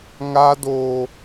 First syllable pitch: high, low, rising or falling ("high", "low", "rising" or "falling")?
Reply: high